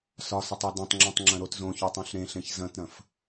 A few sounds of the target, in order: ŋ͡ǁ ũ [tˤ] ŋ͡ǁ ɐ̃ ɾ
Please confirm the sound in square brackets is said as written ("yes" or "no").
yes